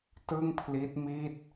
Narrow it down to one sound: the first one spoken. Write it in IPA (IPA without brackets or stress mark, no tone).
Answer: t